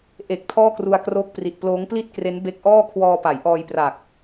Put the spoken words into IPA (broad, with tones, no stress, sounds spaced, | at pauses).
ʔ e˨˩ k̚ tʰ ɔː˥˩ k r u˧ a̯ k r oː˦˥ k̚ p r i˨˩ t̚ p l oː˦˥ ŋ p l i˥˩ t̚ k r e˦˥ n b e˦˥ k̚ ʔ ɔː˥˩ kʰ w ɔː˧ p a˩˦ j ʔ ɔː˧ j p r a˨˩ k̚